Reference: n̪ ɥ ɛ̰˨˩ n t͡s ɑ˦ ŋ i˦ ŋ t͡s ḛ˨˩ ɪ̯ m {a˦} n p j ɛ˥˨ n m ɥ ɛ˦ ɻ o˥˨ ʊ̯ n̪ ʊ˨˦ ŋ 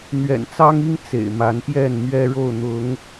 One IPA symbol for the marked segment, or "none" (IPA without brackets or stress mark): a˨˦